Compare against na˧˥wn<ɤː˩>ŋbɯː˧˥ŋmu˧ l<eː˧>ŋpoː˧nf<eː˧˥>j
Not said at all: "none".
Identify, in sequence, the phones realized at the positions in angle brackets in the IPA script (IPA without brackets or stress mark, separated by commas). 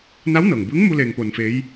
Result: ɤː˩, eː˧, eː˧˥